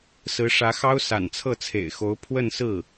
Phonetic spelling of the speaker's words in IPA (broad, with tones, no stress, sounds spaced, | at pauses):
s ɹ̩˧˥ ʂ ä˧˥ x ɑ˥ ʊ̯ s a̰˨˩ n t͡sʰ ɤ˥˩ t͡sʰ ḛ˨˩ ɪ̯ x o˧˥ ʊ̯ pʰ w ə˥˧ n s ɹ̩˥˩